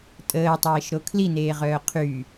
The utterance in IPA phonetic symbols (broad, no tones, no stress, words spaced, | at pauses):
tʼəːtˤeːʃɾo kʰlineːʁœː qʰy